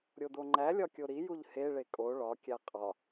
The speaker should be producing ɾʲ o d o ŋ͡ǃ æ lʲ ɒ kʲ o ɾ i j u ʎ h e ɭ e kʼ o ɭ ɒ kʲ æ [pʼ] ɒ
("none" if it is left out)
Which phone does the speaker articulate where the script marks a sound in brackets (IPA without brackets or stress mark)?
qʼ